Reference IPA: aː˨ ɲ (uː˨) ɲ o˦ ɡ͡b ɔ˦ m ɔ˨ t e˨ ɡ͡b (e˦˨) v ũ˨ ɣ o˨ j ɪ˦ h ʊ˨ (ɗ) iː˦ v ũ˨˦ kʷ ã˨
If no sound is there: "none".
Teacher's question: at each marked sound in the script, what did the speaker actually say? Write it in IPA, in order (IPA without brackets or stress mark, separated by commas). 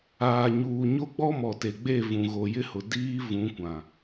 uː˨, e˦˨, d